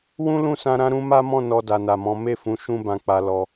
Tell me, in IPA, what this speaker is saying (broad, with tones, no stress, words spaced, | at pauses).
wũ˦lũ˦˨sã˧ ɾã˧ɾũ˧ma˦mɔ̃˦˨ nɔ˧da˨na˨mɔ̃˨˦ me˦˨fũ˨˦ ʃũ˦bã˧k͡pa˧ lɔ˧